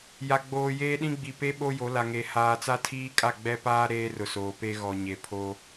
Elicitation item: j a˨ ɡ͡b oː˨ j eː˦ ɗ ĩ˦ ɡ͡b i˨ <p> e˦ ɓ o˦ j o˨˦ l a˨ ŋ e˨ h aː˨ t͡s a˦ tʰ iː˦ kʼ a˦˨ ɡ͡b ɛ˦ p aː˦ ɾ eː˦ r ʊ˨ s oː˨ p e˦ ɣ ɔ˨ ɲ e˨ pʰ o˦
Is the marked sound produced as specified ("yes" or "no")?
yes